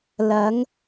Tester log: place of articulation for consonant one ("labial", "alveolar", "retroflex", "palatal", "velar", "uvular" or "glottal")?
alveolar